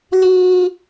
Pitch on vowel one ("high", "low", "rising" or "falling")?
high